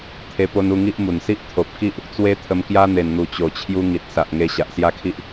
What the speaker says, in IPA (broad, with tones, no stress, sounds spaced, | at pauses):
t̪ʰ e˧ p o˧ n u˧ ŋ i˦ ʔ m u˨˩ n s i˦ ʔ t̪ʰ o˨ p̚ k i˦ ʔ | t͡s w e˦ t̪ʰ ə˧ m k j a˦ n̪ e˨˩ n n̪ u˨˩ t͡ɕ o˨˩ t͡ɕʰ j u˧ ŋ i˨ t̚ s a˨ ʔ ŋ e˧ ɕ a˨ ʔ s j a˥˧ kʰ i˦ ʔ